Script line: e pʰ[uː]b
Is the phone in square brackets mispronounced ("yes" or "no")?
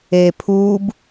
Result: no